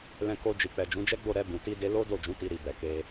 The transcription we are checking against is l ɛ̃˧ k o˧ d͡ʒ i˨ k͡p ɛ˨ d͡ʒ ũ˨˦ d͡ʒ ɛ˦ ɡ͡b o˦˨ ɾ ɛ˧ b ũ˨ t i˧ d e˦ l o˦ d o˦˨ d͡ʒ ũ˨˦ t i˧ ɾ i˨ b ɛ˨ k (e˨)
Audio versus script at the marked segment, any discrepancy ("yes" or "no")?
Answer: yes